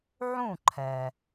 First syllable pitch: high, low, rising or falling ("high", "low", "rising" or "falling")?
falling